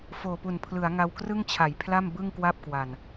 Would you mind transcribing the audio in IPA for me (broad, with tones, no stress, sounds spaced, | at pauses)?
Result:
f oː˨˩ p u˨˩ n pʰ l ɯ˩˦ a̯ ŋ a˧ w k r ɯ˥˩ ŋ t͡ɕʰ a˩˦ j pʰ l a˥˩ m b ɯ˥˩ ŋ k w a˥˩ p̚ k w a˨˩ n